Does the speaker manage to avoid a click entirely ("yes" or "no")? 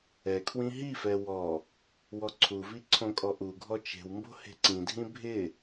no